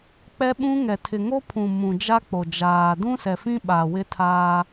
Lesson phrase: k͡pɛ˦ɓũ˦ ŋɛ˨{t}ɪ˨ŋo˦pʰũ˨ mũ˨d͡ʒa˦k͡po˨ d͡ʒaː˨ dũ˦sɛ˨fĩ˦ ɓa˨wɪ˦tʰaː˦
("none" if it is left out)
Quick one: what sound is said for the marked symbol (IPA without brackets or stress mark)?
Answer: tʰ